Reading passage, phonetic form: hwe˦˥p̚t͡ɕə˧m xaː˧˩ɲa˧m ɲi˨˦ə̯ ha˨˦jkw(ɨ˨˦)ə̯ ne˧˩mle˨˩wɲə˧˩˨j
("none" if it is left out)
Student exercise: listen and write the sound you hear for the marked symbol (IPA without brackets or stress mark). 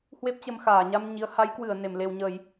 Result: ɨ˧˩